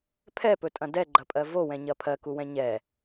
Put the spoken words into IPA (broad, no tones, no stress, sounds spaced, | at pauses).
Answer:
pʰ ɛ p ɵ tʼ ɐ̃ d ɛ ɡ͡ǃ ɐ pʼ ɜ v o w ɛ̃ ɲ ɐ pʰ ɜ k u w ɛ̃ ɲ ɛ